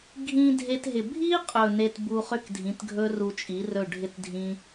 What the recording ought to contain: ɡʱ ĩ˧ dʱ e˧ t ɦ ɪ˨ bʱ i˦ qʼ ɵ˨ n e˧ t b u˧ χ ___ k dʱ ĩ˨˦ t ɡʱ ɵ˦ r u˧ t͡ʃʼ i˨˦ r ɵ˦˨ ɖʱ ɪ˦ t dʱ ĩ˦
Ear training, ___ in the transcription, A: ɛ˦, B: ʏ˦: B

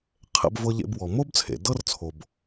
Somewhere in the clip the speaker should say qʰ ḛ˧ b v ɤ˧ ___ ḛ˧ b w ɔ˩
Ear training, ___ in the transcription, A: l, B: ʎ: B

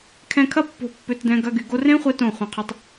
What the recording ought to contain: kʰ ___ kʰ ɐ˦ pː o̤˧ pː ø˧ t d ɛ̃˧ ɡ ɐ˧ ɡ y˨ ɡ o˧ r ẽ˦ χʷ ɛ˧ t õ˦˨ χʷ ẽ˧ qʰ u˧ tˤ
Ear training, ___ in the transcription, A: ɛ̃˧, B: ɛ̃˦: B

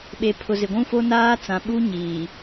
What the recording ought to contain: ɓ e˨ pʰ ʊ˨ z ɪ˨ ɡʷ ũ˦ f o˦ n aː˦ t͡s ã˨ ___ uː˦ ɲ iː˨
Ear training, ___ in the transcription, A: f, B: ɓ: B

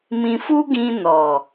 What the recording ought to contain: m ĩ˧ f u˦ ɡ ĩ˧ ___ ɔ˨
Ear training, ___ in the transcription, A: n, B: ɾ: A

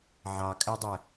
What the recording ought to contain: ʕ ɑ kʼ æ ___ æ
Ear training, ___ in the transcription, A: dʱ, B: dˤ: B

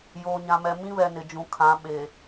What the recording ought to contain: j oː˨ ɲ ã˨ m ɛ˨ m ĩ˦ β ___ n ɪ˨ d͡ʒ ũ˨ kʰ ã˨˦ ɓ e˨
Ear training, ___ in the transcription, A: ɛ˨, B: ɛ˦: A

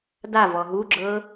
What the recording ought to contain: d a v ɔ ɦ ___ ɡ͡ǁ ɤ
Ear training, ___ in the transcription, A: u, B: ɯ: A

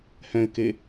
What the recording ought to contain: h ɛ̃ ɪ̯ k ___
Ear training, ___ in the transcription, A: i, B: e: B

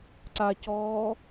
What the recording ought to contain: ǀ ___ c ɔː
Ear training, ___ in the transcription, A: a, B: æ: A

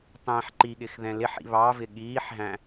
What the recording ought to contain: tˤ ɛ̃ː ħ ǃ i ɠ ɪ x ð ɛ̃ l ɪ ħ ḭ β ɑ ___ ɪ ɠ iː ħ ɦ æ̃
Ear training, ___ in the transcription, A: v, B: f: A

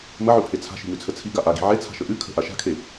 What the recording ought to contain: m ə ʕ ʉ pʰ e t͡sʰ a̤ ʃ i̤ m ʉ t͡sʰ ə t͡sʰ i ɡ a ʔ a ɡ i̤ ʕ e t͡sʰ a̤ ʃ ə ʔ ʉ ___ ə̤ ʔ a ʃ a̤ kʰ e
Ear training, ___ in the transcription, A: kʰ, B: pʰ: A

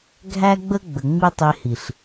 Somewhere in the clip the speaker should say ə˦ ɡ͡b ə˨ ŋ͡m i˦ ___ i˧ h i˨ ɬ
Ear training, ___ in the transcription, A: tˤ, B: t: A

